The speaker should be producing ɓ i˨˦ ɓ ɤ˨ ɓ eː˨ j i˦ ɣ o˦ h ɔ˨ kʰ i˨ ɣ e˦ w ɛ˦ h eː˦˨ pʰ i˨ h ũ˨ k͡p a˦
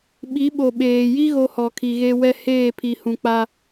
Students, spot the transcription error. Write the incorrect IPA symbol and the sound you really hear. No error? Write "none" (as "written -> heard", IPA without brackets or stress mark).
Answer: ɤ˨ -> o˨